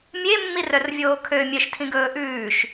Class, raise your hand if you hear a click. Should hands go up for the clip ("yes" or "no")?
no